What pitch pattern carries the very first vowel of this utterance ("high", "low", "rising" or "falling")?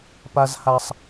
high